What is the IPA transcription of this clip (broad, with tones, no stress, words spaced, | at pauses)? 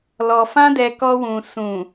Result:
lɔ˧fã˦dɛ˧ kɔ˧wũ˨ sũ˨